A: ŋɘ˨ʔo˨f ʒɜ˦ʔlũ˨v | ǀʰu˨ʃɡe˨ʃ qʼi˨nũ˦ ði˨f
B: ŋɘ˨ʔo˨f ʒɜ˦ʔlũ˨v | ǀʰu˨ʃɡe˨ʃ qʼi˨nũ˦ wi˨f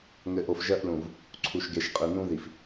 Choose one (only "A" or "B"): A